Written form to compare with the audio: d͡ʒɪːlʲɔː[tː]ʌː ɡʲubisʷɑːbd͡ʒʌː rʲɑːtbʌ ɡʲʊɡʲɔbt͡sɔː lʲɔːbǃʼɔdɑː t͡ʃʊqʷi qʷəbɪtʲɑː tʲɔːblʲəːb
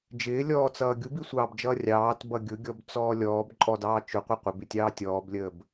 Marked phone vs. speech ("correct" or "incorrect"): incorrect